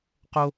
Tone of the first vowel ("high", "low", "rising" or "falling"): high